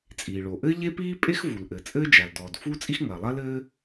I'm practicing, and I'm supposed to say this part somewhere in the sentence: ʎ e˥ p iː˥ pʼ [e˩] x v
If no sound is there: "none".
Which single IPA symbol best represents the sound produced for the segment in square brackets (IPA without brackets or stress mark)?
e˥